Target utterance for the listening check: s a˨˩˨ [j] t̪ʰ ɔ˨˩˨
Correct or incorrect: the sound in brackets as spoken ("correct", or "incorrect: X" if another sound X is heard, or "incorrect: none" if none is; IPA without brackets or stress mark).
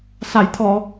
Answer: correct